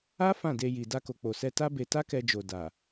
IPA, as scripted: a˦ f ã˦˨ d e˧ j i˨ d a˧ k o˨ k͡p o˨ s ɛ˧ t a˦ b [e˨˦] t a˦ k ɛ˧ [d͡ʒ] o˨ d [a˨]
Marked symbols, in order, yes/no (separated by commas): no, yes, yes